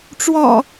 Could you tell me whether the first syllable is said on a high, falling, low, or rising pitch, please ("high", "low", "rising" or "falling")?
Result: low